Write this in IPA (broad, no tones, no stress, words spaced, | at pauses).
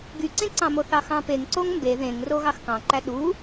ɡyǀẽǀɑ̃mo θɑxɑ̃peŋ ǀoŋmbe ðẽŋro ɣɑxkɑ̃ǃæ ɗu